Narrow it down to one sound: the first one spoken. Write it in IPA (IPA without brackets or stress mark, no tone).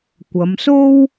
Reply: kʷ